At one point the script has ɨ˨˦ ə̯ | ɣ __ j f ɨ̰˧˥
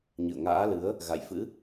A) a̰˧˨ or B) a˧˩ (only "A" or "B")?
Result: A